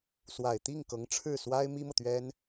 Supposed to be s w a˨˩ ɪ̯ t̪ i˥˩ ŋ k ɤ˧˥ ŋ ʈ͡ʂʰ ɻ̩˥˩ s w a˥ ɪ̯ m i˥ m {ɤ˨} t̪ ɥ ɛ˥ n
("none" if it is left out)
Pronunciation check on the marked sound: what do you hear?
ɤ˨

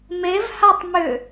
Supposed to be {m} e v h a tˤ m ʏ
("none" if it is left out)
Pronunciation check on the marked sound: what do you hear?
m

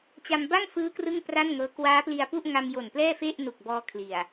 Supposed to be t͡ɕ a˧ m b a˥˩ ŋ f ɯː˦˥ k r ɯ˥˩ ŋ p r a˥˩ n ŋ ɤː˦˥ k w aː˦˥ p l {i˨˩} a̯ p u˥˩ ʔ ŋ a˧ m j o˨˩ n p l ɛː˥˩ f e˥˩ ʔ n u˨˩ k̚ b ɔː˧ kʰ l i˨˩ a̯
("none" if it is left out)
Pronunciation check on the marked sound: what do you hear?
i˧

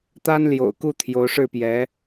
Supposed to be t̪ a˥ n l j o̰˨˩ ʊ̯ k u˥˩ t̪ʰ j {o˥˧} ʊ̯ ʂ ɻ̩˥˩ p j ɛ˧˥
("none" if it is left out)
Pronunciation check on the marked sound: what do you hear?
o˧˥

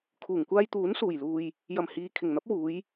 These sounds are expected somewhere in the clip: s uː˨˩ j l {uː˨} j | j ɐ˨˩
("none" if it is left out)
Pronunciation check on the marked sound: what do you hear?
uː˨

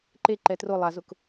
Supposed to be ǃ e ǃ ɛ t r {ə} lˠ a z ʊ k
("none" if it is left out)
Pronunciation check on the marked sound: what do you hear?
ʊ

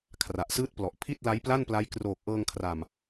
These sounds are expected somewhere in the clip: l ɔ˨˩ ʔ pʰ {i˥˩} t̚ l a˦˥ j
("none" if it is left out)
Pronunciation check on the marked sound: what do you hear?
i˥˩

